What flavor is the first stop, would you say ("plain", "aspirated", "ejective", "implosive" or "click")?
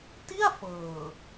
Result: plain